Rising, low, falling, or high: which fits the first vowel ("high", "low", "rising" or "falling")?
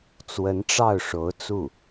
rising